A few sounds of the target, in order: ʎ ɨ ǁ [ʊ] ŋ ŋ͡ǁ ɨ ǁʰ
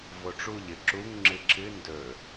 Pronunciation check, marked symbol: incorrect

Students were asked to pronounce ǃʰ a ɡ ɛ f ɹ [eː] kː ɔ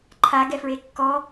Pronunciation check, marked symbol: incorrect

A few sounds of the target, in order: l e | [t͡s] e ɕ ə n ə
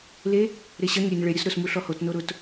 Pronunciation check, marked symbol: incorrect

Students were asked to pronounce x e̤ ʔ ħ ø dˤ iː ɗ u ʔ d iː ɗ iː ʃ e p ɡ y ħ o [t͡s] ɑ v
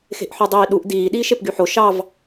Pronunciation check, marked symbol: incorrect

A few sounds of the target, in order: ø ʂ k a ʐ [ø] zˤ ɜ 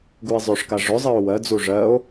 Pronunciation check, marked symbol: incorrect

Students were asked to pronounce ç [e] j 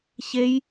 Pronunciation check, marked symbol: correct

